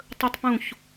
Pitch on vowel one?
high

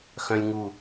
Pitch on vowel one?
high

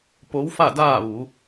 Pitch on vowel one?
rising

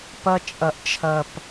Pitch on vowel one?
high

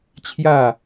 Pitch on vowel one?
falling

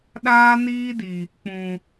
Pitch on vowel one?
high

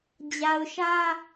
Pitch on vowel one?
low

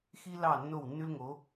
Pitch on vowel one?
high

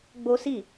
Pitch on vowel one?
high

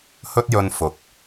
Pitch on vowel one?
high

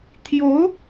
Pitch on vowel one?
rising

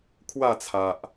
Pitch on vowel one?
falling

